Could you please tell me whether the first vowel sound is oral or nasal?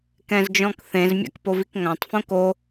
nasal